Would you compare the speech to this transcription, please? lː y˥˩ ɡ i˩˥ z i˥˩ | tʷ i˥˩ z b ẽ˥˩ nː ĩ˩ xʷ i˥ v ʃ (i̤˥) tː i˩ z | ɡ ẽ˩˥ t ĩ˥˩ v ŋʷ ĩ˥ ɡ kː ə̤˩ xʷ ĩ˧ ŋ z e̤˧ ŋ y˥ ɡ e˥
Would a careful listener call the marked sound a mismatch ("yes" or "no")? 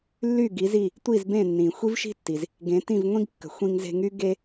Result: no